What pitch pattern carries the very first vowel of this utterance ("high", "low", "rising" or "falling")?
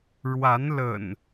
rising